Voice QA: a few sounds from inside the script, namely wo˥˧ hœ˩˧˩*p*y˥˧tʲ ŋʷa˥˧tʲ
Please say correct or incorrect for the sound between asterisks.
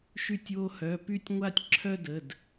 correct